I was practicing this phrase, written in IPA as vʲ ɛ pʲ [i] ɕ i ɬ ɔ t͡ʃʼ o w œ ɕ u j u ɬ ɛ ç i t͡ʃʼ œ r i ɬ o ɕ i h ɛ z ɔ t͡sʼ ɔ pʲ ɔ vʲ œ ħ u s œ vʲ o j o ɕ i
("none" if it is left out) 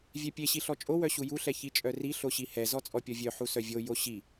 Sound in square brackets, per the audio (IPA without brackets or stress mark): e